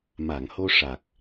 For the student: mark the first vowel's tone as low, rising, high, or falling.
low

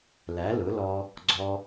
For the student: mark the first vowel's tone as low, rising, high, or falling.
rising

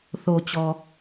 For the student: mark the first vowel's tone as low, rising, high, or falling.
low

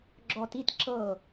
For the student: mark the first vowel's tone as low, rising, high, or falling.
low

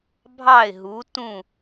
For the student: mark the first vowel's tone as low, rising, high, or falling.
falling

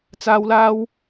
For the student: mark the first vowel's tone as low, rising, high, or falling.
high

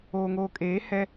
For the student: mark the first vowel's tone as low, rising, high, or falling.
low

